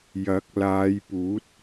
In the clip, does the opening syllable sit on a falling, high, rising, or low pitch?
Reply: rising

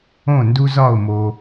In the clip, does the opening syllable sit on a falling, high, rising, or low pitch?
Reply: falling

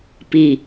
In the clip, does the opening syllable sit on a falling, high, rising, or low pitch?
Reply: low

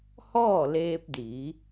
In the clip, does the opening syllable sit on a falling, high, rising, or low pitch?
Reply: falling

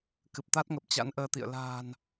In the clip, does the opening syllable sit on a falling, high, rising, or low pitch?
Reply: low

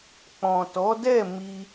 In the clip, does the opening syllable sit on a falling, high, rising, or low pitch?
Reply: low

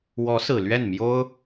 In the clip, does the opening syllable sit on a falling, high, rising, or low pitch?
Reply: rising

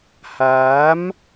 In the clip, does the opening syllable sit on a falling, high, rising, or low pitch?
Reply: rising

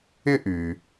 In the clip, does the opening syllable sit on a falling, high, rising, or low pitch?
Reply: high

